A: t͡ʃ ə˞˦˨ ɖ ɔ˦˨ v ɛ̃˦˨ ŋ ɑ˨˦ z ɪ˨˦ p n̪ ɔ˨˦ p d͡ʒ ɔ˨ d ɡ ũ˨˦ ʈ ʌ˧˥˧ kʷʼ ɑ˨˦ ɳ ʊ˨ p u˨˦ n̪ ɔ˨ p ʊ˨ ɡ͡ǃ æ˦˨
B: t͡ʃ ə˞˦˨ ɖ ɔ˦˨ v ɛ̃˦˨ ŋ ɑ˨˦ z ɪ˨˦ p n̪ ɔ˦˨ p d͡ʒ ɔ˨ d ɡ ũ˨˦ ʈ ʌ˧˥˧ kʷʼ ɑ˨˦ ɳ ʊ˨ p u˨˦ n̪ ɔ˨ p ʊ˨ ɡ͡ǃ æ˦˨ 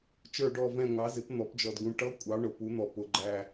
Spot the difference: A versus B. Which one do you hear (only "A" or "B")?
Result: A